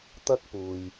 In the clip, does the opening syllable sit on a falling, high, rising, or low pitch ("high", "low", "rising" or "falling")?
high